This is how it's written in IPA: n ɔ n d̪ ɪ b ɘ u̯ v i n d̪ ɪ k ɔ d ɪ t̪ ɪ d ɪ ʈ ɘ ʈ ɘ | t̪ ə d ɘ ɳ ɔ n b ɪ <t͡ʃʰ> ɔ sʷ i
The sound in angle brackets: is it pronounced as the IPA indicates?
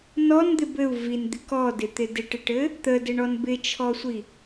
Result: yes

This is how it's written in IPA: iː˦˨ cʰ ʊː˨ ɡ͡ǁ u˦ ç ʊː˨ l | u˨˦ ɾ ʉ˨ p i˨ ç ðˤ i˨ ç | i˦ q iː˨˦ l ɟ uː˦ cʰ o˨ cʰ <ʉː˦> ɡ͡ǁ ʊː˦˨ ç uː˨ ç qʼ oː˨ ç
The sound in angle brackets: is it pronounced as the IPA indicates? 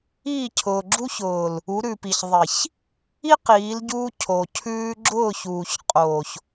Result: yes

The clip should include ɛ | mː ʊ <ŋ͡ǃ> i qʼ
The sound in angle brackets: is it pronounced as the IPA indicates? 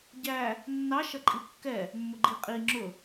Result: no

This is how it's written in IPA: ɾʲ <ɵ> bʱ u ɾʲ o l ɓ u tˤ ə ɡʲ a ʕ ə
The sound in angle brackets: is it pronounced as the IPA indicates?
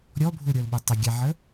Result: no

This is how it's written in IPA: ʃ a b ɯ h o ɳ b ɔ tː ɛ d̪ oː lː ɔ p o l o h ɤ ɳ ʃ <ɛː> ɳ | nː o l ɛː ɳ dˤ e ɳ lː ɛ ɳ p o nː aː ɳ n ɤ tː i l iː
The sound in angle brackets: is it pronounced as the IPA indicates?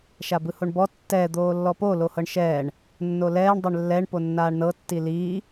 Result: yes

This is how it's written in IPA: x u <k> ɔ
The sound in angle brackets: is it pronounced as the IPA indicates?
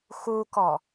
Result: yes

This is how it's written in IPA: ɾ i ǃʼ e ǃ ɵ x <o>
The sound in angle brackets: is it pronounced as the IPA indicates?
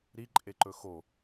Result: yes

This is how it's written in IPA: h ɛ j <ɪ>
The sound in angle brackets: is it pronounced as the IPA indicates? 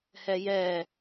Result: no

